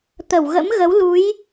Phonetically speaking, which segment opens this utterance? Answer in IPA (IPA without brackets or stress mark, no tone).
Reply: t̪